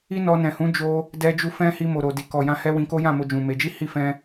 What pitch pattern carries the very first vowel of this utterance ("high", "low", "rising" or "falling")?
high